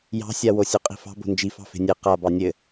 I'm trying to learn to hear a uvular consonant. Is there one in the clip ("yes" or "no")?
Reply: yes